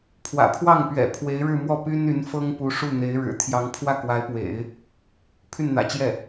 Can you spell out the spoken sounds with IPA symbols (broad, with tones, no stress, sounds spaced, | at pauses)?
pʰ w ä̰˨˩ pʰ w ɑ˥˩ ŋ p ɥ ɛ̰˨˩ pʰ w e˧˥ ɪ̯ ɻ ɻ̩˥˧ m w ɔ˥˩ p y˥ n y˧˥ n f ɤ˥ ŋ p u˧˥ ʂ u˥˩ n̪ e˧˥ ɪ̯ ɻ ɻ̩˨˩ t̪ʰ j ɑ˧˥ ŋ pʰ w ä˥˩ k w a˧˥ ɪ̯ p w ḛ˨˩˦ ɪ̯ | pʰ y˥˩ n n̪ ä̰˨˩ t͡ɕ j ɛ˥˩